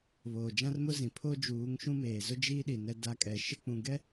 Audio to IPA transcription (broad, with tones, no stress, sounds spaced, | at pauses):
β oː˨ d͡ʒ ã˦ r m ʊ˦ z ĩ˨ pʰ o˦ d͡ʒ uː˨˦ ŋ ʃ ũ˦ m eː˨ z ʊ˦ d͡ʒ iː˦ ɗ i˨ n ɛ˦ d a˦ kʼ ɛ˨ ʃ ɪ˦ k͡p ũ˨ ɡ ɛ˦